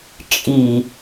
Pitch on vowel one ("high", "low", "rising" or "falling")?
low